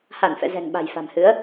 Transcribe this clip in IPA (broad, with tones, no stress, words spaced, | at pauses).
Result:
ha˧˩nfɛ̰˧˨ zɛ̤˨˩ŋɓa̤˨˩jfa̤˨˩mhɨ˨˦ə̯